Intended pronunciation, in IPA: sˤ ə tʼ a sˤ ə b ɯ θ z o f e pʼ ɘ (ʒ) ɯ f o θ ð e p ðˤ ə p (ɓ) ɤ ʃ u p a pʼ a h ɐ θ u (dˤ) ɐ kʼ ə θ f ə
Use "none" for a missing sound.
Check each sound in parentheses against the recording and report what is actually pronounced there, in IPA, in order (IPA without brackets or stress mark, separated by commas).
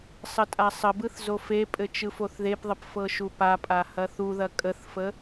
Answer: t͡ʃ, f, ð